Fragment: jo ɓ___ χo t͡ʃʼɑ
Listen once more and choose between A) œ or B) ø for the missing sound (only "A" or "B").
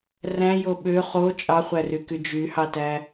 B